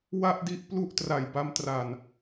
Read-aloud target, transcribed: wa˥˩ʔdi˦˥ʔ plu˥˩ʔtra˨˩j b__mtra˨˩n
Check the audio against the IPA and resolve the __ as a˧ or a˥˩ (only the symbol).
a˧